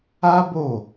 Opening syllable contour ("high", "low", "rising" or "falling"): high